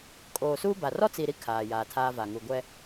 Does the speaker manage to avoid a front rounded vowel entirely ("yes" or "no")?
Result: yes